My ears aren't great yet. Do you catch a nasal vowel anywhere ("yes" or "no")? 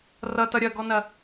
no